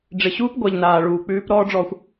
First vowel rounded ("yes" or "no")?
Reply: no